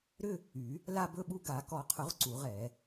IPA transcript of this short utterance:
ɾʏ˥˧ | y˨˩˦ | la˥˧ bɵ˥˧ɓu˥˧ ɡa˨˩˦kɔ˨˩˦qʰʊ˨˩˦ʁ ǀu˨˩˦ʁ ɛ˨˩˦

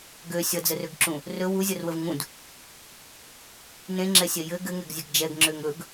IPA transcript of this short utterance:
ɡø sʲʌd͡zərøɡǁũ | rɵ wuzʲʌrwəv ŋũd | nẽŋ͡ǁɛsʲɛ jɘ ɡɘŋɛɡzʲɘɡ d͡ʒɛɡŋ͡ǁøŋ ɵɡ

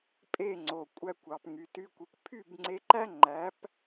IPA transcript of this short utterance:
pʼe˥˩ŋ͡ǀo˩ kʷʼæ˧kʷɑ˩p ŋy˩ty˧kʷi˩kʷ pʰy˥˩bŋ͡ǀe˧ǃæ˥ ŋ͡ǃæ˩˥p

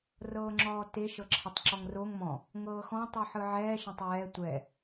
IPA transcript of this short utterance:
rɤːŋ͡ǁɔːte ʃɤǁʰɛtˤǁɔŋroŋ mɔ̃ | ŋɤːxɔ̃ tˤɯħɯʕɛː ʃãtˤjɛː tʷɛ

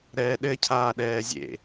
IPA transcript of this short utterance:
ɾɛːɗɘ cʰaːɗɛːzʲḛ

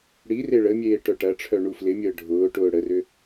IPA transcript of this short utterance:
ɽi reɭəmʲeː ʈœʈɐʈ͡ʂʰœ ɳuflɪmʲəː ɖʱʊːʈʊː ɽərʏ

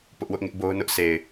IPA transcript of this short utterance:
pʊ˦ʔwʊ˦ʔŋɪ˦ʔbo˦ʊ̯ nʊ˦ʔsʰe˨ɪ̯

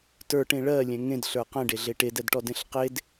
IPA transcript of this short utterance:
tə˞ʈẽ ɭɜlʲɛ̃ ŋẽdɬə˞ qɛ̃ɖeɮe ʈedɛdʈɔdẽɬ qed

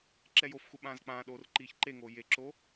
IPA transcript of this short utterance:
ǁɛjofxu ɓãːzk͡pãːɗoːr ǃiːçǃeŋoː jeǁo

